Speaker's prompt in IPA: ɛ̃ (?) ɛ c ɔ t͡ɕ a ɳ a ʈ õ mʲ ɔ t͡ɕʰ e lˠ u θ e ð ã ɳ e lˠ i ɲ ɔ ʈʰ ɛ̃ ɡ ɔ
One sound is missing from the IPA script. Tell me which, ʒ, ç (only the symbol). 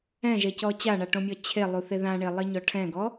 ʒ